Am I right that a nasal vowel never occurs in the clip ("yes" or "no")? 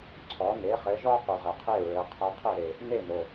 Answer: yes